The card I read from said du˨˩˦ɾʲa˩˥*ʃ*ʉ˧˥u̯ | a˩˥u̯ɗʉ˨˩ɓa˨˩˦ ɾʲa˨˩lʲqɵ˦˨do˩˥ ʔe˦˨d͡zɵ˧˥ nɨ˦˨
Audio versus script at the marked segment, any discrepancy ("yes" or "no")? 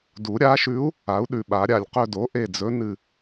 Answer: no